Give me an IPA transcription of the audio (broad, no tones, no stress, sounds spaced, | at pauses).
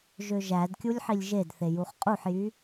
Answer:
ʒ ø ʒ æ d kʲ u lʲ ħ i lʲ ʒ e d θ e j u χ qʼ u ħ j y